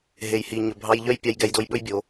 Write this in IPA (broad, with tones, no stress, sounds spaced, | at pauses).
ɦ e˨ j h i˨ ɲ ɵ˨ bʱ ɑ˧ j ʎ œ˦ j pʲ ɑ˧ j ɡ ɛ˧ j d o˧ j ɓ ɵ˦ j bʲ o˨˦